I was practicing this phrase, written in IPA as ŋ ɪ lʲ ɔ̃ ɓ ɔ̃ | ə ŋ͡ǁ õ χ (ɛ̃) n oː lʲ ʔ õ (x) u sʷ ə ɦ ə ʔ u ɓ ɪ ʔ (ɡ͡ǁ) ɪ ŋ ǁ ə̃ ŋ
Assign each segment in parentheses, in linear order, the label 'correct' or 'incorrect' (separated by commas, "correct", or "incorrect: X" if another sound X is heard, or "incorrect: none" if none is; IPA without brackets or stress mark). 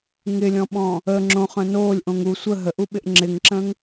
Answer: incorrect: œ̃, incorrect: ŋ, incorrect: ŋ͡ǁ